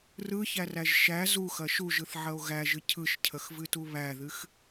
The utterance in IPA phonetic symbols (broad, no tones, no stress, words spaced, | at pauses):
rɯçæræʒ ʃæ zuxɐ ʃuʒɯθʕɐo̯ ɣæʒɨ cʰɯʃcʰəxvɨtu βæðɨx